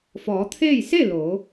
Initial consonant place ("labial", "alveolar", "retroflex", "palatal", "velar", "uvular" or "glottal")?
labial